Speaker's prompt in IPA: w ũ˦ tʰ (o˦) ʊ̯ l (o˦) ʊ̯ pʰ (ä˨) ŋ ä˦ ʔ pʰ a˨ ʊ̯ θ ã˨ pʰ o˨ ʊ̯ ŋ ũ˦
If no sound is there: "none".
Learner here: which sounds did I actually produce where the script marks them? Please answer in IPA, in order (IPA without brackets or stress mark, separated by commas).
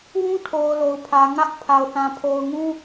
o˨, o˨, ä˨